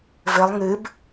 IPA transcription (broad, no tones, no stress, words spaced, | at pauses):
vɘlˠ ŋɨb